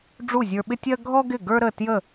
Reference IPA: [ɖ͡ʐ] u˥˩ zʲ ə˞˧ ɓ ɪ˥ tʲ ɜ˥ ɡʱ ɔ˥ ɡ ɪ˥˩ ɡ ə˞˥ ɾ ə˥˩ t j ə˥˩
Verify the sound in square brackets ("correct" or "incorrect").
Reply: correct